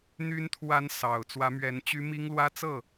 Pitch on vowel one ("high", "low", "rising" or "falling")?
rising